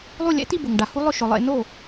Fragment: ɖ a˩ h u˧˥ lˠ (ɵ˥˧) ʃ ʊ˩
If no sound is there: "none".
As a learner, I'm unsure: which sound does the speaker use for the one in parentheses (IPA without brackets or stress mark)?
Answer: ʊ˥˧